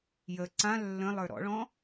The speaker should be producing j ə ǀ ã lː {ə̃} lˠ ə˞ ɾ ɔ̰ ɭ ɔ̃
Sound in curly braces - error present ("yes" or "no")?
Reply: no